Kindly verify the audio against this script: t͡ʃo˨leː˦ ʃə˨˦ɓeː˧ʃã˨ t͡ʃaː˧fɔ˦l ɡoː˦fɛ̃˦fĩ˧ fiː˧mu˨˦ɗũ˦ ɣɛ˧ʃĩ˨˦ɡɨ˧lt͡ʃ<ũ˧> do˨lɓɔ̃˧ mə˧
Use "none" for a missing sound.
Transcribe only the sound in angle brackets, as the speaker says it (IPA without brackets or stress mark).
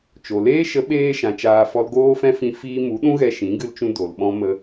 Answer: ũ˧